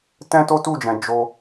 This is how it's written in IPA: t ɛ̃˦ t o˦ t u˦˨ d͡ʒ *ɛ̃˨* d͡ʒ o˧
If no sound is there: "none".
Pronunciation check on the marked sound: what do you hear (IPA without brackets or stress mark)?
ɛ̃˨